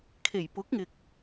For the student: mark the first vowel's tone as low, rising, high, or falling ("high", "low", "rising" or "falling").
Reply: low